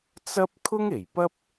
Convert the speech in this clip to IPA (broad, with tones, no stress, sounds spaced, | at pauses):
t͡s ɐ˥ p̚ kʰ ʊ˥ ŋ e˨˩ j p ɐ˥ p̚